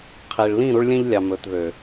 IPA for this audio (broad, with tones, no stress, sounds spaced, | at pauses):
qʰ i˨ ɭ l ĩ˦˨ ɾ u˦ ɭ lʲ ɛ̃˦ ʎ lʲ ɑ˨ m ɵː˨ t ð ø˨